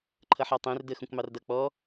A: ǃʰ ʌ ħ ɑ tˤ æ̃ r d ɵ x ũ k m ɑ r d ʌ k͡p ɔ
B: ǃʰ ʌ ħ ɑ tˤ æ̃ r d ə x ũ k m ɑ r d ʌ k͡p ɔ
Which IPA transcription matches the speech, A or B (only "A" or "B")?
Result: B